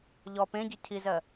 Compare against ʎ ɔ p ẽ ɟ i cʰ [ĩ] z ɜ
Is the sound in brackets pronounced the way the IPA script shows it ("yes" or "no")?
no